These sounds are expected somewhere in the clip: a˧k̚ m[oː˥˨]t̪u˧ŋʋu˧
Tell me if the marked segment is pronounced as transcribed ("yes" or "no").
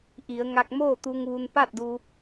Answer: yes